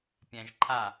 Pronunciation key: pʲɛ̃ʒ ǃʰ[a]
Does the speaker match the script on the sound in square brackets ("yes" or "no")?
yes